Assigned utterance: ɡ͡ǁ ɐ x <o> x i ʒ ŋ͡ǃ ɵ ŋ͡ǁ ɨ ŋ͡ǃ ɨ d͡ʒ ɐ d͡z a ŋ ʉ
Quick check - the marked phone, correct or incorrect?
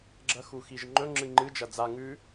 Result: incorrect